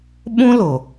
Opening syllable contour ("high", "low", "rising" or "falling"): high